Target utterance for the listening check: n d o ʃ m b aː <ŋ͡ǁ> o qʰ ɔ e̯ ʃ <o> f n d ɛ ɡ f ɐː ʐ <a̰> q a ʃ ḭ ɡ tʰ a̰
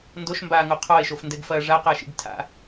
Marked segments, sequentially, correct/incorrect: incorrect: ŋ, correct, incorrect: a

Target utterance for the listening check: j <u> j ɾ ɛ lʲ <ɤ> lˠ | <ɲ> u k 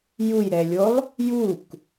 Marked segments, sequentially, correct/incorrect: correct, incorrect: o, incorrect: j

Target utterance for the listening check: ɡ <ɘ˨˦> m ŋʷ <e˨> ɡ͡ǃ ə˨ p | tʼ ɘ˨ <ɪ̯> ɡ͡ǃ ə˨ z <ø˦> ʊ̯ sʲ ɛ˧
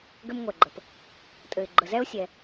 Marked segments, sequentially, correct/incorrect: incorrect: ɘ˧, incorrect: ɛ˨, correct, incorrect: ɛ˦

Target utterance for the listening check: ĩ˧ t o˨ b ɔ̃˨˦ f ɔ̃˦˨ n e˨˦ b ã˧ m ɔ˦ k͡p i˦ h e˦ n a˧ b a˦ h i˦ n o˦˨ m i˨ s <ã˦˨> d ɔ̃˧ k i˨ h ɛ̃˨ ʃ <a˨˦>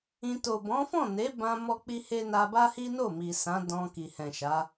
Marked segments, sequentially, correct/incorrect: incorrect: ã˨˦, correct

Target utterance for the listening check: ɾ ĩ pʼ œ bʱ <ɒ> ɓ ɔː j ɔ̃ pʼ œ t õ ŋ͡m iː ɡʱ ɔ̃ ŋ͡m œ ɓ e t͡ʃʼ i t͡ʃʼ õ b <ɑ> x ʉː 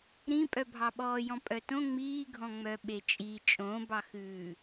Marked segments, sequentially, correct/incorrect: incorrect: ɑ, correct

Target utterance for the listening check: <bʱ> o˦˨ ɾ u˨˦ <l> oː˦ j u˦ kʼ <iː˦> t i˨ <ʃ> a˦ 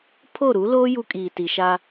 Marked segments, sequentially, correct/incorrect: incorrect: pʰ, correct, incorrect: iː˨, correct

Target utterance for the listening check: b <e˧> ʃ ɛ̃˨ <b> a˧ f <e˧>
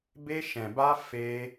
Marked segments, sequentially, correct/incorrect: correct, correct, correct

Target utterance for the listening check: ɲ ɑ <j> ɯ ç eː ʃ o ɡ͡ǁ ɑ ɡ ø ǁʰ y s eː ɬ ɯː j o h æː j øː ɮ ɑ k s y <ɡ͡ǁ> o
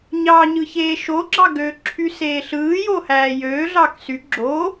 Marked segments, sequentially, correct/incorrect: incorrect: ɲ, correct

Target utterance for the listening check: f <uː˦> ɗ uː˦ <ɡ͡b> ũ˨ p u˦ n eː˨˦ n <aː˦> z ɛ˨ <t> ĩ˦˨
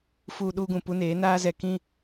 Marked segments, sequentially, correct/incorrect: correct, incorrect: ɡ, correct, incorrect: k

